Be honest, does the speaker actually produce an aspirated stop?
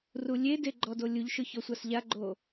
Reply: no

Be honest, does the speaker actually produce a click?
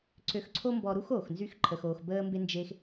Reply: yes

